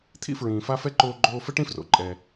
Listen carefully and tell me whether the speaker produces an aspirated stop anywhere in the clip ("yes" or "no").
yes